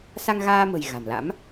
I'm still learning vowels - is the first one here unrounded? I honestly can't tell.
yes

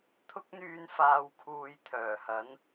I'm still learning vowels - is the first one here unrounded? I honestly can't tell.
no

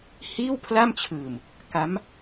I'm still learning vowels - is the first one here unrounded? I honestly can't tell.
yes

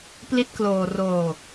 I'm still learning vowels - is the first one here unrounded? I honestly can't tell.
yes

